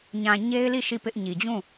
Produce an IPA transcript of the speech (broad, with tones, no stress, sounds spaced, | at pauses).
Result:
ɲ ã˨ ɲ e˦ ɪ̯ l i˦˨ ʃ i˦˨ p ɪ˦ ʔ ɲ i˨ d͡ʑ ũ˦˨